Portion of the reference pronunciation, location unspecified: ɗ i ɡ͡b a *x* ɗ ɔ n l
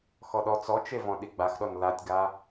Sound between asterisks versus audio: correct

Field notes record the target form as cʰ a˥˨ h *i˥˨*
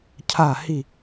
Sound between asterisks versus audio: correct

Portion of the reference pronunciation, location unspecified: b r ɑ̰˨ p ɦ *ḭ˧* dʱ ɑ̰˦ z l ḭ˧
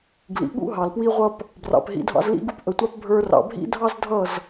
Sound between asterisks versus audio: correct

